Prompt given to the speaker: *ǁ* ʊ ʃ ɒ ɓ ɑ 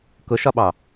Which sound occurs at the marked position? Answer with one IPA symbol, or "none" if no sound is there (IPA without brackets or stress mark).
k